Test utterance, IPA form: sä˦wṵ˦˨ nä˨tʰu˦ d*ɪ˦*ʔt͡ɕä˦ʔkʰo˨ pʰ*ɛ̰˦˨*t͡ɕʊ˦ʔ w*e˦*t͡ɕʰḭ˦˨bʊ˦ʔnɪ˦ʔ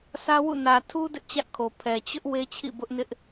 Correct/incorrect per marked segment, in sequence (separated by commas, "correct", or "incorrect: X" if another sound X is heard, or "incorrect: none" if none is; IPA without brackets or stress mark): correct, incorrect: ɛ˨, correct